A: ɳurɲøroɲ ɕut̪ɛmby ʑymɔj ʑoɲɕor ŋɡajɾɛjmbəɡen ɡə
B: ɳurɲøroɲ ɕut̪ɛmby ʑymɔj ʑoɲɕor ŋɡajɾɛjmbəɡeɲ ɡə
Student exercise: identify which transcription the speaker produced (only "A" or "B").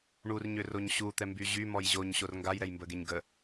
B